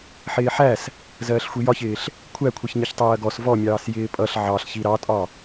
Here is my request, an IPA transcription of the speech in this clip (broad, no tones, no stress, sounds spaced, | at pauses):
ħ ɪː ħ æ s | z ɜː ɬ xʷ i j ɒ ç ɪː ɬ | kʷʰ æ kʷʰ ɛ ç ɲ ɪ ç tˤ ɜː ɡ ɔ s v ɔ mʲ ɑː s j ɪː pʼ ʌ ɬ ʕ ɑ ɬ ç i ɾ ɑ tʼ ɒ